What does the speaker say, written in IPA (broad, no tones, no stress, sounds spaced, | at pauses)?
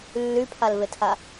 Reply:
lː y pʰ a l v e tʰ a